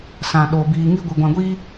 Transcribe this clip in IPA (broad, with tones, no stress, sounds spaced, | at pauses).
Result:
s ã˨ ɗ o˨ b iː˨ ŋ i˧ ɡʷ i˨ ɡʷ ã˧ ɡʷ iː˦